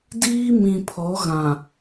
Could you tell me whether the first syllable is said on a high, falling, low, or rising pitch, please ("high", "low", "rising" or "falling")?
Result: high